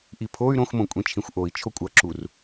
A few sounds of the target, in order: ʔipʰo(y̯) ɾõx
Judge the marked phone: correct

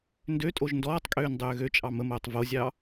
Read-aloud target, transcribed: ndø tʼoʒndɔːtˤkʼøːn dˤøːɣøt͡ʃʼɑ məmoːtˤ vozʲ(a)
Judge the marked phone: incorrect: ɑ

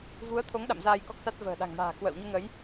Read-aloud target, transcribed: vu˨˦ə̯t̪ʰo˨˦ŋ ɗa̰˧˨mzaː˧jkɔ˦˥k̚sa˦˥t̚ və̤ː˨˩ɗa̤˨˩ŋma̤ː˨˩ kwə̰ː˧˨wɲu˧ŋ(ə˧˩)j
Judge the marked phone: incorrect: ə˨˦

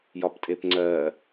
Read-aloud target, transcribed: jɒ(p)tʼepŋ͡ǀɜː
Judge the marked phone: correct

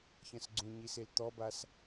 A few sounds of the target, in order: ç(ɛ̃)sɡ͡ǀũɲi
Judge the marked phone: incorrect: ə̃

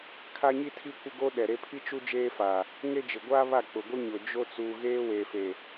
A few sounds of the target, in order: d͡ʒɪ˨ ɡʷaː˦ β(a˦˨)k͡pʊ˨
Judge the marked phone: correct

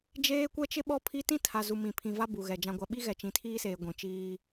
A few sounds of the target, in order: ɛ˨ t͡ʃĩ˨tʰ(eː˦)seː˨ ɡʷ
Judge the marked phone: incorrect: iː˦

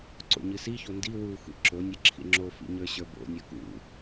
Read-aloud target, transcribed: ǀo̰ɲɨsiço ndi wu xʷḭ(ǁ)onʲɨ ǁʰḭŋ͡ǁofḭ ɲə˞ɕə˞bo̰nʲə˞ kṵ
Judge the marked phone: correct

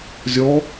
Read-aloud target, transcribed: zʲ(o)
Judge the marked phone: incorrect: ɔ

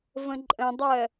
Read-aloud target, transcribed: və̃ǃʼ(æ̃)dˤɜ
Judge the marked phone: incorrect: ə̃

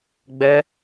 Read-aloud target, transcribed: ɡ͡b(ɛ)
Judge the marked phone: correct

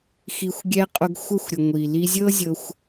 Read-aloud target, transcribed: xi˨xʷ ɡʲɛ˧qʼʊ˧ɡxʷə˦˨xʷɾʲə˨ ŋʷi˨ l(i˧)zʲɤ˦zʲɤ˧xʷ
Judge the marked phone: correct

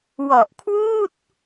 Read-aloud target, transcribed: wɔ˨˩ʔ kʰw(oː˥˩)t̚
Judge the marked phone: incorrect: uː˥˩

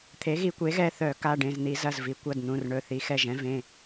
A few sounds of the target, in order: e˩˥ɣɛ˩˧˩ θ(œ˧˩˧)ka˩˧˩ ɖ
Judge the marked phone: correct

